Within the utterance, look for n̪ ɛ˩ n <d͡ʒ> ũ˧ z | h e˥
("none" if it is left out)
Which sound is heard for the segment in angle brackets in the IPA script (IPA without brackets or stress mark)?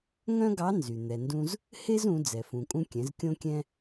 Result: d